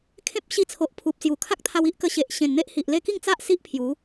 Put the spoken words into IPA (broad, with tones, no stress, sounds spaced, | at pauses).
kʰ ẽ˦ p̚ ɕ i˧ t͡sʰ o˨ ʔ pʰ u˨ p̚ s j u˨˩ kʰ a˦ k̚ t̪ʰ a˧ w i˦ ʔ k ə˧ ɕ e˨ ʔ ɕ ẽ˨˩ n n̪ e˦ ʔ h i˨ ʔ l e˥˧ k i˥˧ ŋ t͡s a˦ ʔ s i˦ ʔ pʰ j u˨˦